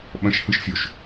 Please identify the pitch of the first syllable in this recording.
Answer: high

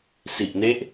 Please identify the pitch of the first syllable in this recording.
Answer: low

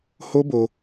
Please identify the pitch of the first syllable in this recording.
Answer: high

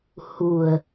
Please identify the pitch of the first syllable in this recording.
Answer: low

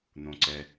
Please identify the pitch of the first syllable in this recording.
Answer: low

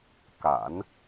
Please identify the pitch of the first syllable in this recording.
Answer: low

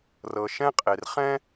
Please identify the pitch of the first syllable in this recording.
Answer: low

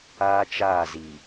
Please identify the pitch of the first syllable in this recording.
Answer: high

